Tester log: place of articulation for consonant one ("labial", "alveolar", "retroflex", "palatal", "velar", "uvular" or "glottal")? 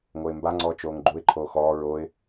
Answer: velar